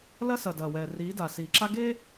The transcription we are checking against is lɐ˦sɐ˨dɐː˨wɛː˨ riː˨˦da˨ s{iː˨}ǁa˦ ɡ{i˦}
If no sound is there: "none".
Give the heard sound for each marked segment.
iː˨, e˦

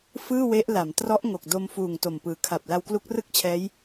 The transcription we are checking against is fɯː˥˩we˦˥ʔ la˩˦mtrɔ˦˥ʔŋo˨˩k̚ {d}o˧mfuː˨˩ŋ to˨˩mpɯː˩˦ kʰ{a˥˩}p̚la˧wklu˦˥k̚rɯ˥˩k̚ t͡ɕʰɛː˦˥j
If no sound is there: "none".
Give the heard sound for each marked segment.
d, a˨˩

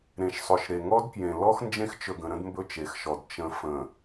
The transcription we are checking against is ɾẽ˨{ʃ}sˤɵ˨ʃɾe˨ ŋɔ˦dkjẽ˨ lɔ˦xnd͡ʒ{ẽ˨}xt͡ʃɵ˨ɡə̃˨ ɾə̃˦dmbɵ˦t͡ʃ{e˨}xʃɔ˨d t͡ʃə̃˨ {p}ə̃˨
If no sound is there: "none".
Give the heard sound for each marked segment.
ʃ, ẽ˦, e˨, f

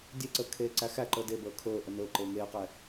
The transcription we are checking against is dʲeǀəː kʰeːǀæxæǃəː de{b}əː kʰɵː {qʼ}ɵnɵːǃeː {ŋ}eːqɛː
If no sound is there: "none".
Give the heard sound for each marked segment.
b, ʔ, ŋ

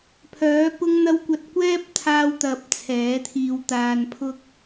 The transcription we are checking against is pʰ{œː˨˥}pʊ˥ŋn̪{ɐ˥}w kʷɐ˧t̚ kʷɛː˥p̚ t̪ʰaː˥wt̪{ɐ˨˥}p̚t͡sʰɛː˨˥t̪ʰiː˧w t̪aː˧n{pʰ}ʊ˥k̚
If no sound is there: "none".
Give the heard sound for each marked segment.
œː˨˥, ɐ˥, ɐ˧, pʰ

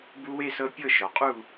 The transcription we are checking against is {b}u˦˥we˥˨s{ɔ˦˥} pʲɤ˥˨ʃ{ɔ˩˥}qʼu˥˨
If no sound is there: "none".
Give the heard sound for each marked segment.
b, ɤ˦˥, ɔ˩˥

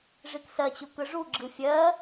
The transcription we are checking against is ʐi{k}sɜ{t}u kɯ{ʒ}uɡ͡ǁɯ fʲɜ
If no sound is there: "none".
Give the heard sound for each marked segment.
k, t͡ɕ, ʐ

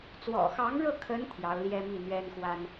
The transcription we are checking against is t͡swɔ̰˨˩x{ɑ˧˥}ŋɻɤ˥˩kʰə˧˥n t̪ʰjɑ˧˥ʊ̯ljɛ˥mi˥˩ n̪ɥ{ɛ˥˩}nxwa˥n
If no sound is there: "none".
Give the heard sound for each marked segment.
ɑ˧˥, ɛ˥

